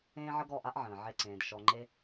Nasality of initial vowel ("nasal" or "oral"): nasal